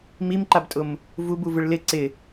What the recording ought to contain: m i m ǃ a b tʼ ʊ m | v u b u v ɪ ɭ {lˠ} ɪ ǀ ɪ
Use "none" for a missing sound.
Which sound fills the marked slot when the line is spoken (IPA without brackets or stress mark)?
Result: l